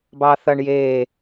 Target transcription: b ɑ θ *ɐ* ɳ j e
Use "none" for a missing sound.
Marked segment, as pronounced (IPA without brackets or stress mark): ɐ